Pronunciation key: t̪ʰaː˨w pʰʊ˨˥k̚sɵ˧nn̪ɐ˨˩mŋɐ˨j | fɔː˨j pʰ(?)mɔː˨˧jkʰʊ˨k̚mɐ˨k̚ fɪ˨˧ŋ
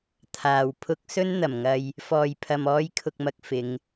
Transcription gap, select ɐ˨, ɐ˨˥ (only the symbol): ɐ˨